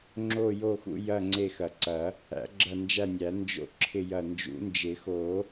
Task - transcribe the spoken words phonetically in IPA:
ŋ͡ǁo˦˨jo˦˨xṵ˦˨ jɐ˦˨ ŋ͡ǀe˦˨xɐ˨˩˦ǀɐ˨˩˦ | æ̰˨˩˦ɡ͡ǁɐ˦˨nd͡ʒæ˦˨nʲæ˨˩˦ nd͡ʒo̰˦˨ǁʰɪ˦˨ jɐ˦˨ nd͡ʒṵ˨˩˦nd͡ʒɪ˨˩˦xo˨˩˦

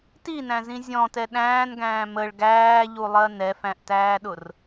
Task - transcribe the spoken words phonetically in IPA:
tinæ̃zĩ zʲɔ̃tɛ ɗæ̃ːnɡæ̃ː məɭ ɡæːʎulˠɜ nɛfæ̃ʔtæːɗʊr

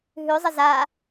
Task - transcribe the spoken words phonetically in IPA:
ɦʉzˤə za

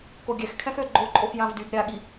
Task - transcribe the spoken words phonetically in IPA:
koɡʲɛx kʰɛ̃xø ɡ͡ǃoǃʼox jãvdyb ɾʲaɠi

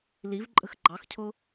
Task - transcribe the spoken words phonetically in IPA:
livǃʼə̤x ɡ͡ǃɑxcʰʊ

